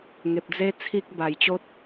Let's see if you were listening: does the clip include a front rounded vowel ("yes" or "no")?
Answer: no